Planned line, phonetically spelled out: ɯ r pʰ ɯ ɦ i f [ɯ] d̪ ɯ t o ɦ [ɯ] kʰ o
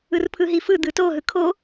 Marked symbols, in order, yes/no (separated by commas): yes, yes